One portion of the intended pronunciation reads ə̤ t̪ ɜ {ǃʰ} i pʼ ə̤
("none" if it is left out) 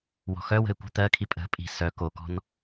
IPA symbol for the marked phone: kʰ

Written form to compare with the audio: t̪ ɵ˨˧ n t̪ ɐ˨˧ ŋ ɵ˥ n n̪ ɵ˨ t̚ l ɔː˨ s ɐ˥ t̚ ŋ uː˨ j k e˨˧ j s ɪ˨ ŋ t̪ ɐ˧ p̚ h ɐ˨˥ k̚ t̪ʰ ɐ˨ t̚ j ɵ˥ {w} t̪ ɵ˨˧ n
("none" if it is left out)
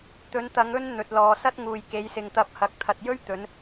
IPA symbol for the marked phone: ɥ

